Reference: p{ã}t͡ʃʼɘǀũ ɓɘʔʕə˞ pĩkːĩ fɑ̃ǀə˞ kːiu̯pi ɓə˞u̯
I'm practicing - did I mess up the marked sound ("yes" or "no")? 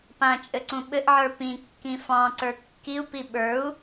no